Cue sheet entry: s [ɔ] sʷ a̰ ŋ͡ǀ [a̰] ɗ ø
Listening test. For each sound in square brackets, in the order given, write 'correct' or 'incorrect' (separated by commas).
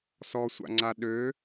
correct, incorrect